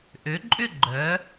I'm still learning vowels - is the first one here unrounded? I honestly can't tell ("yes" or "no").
no